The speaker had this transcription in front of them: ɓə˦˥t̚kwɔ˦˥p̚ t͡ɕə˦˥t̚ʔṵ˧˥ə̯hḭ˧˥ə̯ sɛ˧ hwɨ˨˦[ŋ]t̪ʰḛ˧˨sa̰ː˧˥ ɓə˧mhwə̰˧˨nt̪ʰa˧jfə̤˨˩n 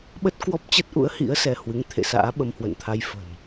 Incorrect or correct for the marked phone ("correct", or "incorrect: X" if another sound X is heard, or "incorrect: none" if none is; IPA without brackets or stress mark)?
correct